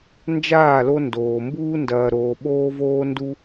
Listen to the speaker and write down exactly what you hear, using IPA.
nd͡ʒaː˦˨lo˧ ndoː˨mbuː˦ ndɐː˨ɾoː˨ ɓoː˦voː˦ndu˦

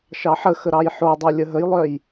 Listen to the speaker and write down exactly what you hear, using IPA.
ʃɑħəxə ɾɑjħodˤœ lʲəɦəjlˠœj

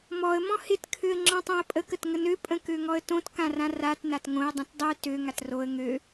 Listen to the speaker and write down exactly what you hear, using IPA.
mɔə̯ mɔ̃hɪt kʰøə̯ŋ͡ǁɔ̃tˤõə̯pʼə kətŋənø pʼə̃køŋɔə̯tõt kãrãrat natŋõə̯ dˤĩtdˤø tø ŋatroə̯ ŋø

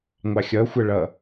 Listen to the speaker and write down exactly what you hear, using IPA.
ŋʷɑxʲʌxʷʌ ɭʌ

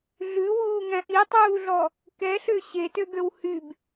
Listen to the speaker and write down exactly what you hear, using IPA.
ɮʉwuːŋæ̃ ʔitˤuːɮɔ | kɛɬø ɕetøɡøw hyb

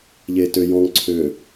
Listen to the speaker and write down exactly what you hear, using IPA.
ʎeːtø jɔ̃ŋ ǀʰø

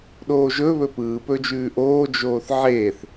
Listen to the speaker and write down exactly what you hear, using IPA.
ɗoːʒɵβɵ pɯːpɵd͡ʒʉː ʔoːd͡ʒoːθ ʕeːθ

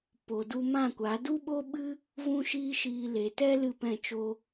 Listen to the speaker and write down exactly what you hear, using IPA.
po˨du˧mã˦˨kʷa˨˦ du˦ɓo˦ɓɨ˦ | vũ˦ʃiː˦ʃiː˧ le˨tɛ˦ lɨ˦˨pɛ̃˦˨t͡ʃo˦

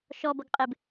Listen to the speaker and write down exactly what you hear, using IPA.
ʃɔ bʌɡqʼɪb

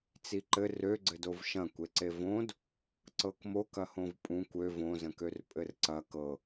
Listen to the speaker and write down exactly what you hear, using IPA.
t͡siǃɘ røɡ͡ǀɘdov ʃɐ̃kʷe ǀevõd | ǀɤkmokɐ hõvpʼũkʷ ø võzə̃kør pʼɘrǀɐ kɤ

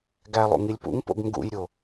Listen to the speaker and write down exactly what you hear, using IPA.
ɡælˠṵŋilʲ pṵŋpo̰ɡ ŋɡṵjɾʲo

